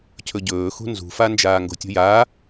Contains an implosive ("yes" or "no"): no